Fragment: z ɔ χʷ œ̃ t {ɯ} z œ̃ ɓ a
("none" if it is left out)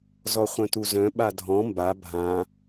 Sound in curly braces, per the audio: u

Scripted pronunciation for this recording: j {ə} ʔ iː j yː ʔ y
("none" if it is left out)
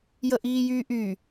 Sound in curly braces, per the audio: ə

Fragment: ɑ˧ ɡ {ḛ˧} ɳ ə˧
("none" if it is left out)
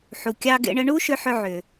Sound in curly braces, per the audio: ḛ˧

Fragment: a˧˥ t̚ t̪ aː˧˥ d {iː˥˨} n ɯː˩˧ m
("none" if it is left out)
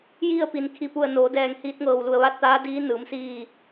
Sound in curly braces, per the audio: iː˧˥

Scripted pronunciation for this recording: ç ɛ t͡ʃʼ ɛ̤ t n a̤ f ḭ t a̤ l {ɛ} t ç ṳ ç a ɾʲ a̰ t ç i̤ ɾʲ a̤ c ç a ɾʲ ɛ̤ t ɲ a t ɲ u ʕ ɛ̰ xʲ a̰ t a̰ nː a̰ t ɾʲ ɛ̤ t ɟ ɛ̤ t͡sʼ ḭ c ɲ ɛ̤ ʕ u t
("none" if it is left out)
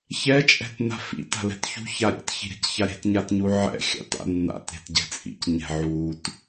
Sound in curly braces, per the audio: ɛ̤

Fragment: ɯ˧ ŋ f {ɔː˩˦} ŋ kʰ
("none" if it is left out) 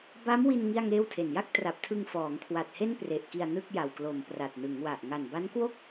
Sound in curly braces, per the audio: ɔː˩˦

